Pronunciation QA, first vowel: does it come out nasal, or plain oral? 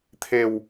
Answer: oral